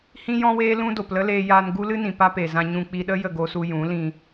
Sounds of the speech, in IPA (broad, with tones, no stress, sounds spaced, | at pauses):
h ĩ˦ j ɔ̃˦ w eː˦ l ũ˦ d o˨ p l ə˦ l eː˧ j aː˧ n ɡ u˦ l ɨ˦ n ĩ˨ p a˦ p e˨ z ã˧ ɲ ũ˧ k͡p i˧ ɗ ə˦ j ə˦˨ ɡ o˧ s u˧ j ũ˨˦ l ĩ˧